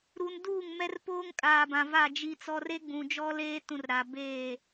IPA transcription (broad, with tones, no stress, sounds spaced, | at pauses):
ɾ u˨ n d uː˦˨ ŋ m ɛ˦ r p oː˦ ŋ kʼ aː˨ b ã˨ v a˦˨ d͡ʒ i˦ t͡s ɔ˦ r e˦ ɡ͡b ũ˨ d͡ʒ ɔ˦ l eː˦ t ũ˨ r ɾ a˨ b eː˦˨